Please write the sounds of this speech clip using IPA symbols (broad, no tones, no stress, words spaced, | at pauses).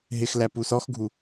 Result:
ɦɪxlæ pusɔxɡʱu